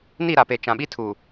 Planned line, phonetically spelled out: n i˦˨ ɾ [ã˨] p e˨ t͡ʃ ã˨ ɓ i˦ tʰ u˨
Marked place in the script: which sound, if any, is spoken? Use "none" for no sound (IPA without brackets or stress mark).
a˨